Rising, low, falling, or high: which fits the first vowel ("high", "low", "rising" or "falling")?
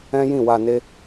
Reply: high